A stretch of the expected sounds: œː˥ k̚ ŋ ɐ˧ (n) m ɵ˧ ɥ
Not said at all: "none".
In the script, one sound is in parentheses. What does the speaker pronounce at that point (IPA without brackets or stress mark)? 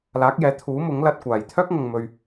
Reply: ŋ